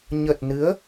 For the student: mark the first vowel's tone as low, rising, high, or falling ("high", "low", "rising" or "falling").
low